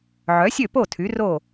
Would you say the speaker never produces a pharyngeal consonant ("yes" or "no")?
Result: no